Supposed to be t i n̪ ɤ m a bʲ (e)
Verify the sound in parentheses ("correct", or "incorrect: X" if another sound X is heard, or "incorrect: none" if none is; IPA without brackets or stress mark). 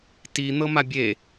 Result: correct